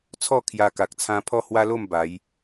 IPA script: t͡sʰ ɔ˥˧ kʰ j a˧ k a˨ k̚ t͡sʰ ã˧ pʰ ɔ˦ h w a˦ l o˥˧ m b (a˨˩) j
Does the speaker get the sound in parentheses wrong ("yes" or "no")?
yes